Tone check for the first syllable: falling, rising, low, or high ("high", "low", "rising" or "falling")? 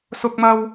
high